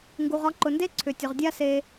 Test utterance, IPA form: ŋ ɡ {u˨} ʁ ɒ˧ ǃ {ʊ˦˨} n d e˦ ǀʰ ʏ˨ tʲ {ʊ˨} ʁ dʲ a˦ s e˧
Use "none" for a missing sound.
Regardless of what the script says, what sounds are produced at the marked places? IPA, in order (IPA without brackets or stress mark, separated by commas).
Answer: u˨, ʊ˨, ʊ˨